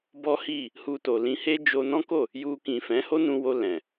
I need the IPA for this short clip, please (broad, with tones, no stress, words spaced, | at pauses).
bɔ˦hi˦˨ | hu˧to˨lĩ˧he˦ d͡ʒo˧nɔ̃˦ko˦˨ | ju˧kĩ˨ fɛ̃˨˦ho˦nũ˧wo˧ lɛ̃˨